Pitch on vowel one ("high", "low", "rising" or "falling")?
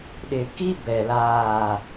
low